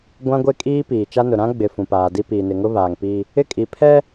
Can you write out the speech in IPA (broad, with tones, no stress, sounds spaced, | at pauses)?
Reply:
ɡʷ ã˦ ɡʷ e˦ kʼ iː˦ p iː˨ t͡ʃ a˦ n ʊ˨ ɾ ã˦ ɡ͡b ɪ˨ f ũ˨ p aː˨ d i˦ p iː˨ n ɪ˨ ŋ ʊ˦ β aː˨ ŋ p i˦ | ɪ˦ kʼ i˨ pʰ ɛ˦